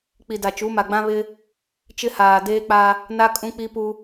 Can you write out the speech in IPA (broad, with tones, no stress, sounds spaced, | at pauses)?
k͡p i˨ d a˨ t͡ʃ u˨˦ m a˨ ɡ͡b ã˦ β ɪ˦ | t͡ʃ ɪ˦ h aː˨ d eː˦ k͡p a˦ | n a˦ kʼ ũ˦ k͡p i˦ p u˦